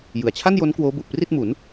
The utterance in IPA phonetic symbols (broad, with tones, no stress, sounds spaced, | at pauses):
j ɯ˩˦ a̯ t͡ɕʰ a˥˩ n j o˦˥ n k w oː˦˥ b u˨˩ ʔ p r i˥˩ t̚ m u˩˦ n